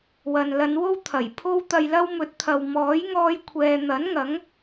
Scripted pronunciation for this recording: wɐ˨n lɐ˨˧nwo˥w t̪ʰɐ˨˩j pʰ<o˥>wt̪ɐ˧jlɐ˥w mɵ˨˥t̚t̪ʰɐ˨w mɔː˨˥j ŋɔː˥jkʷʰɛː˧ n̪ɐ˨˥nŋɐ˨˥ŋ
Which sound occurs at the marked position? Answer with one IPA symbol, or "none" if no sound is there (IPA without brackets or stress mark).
o˥